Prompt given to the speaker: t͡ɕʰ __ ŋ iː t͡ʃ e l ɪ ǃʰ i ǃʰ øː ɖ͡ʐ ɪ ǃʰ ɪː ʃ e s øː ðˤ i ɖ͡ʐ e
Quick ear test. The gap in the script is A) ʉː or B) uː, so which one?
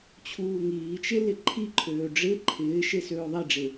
B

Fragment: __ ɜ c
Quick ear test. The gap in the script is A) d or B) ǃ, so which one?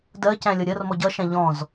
A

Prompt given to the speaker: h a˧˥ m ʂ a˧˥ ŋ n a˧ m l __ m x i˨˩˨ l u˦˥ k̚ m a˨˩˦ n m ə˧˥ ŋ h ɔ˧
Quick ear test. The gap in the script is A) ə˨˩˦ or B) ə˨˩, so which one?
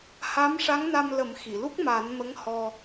A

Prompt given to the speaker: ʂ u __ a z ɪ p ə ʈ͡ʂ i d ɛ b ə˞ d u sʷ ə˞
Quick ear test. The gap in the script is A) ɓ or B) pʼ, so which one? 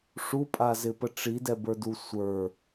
B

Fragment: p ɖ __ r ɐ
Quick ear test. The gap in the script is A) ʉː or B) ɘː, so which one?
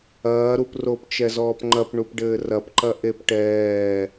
B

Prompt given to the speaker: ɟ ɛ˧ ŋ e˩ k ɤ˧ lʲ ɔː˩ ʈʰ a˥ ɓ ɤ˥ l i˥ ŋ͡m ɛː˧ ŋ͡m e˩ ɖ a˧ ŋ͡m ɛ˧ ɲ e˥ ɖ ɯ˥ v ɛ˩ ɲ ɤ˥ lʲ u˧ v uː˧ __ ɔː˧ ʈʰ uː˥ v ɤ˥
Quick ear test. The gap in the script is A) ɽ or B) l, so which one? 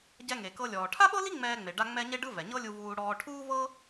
A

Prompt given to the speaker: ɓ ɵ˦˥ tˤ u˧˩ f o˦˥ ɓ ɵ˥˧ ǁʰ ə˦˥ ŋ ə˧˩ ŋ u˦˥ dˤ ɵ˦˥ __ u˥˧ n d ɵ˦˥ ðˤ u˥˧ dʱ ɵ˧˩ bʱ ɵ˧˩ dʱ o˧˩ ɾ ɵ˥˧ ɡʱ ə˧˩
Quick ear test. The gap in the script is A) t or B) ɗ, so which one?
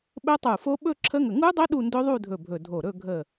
B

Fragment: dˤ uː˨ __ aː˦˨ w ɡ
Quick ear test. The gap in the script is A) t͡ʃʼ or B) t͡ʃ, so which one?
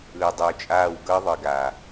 A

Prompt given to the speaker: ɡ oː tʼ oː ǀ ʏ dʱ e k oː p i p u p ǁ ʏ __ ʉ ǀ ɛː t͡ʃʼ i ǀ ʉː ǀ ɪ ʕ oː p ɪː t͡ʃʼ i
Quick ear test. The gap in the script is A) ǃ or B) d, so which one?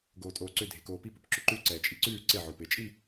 A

